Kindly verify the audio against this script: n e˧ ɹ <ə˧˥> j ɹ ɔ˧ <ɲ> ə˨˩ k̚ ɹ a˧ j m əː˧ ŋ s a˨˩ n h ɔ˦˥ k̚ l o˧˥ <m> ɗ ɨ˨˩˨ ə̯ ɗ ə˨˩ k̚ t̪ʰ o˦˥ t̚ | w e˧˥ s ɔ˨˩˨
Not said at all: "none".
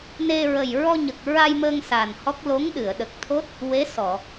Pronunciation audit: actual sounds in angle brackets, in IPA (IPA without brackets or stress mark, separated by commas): ə˨˩, ɲ, ŋ